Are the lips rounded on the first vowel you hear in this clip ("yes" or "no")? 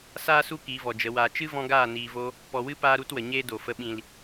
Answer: no